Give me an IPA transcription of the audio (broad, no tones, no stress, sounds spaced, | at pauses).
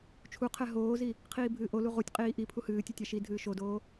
t͡ʃʰ u qʰ ɛ ɦ oː z i | qʰ iː bʱ ɨː ʔ o l u ʁ u tʲ qʼ iː ʔ i pʰ u h ɨː tʲ ɨ tʲ a ʃ i dʱ ɨː ʃ o d oː